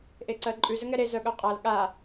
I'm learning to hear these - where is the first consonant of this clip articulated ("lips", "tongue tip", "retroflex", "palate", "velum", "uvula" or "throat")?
throat